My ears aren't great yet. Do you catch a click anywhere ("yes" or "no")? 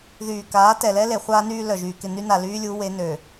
no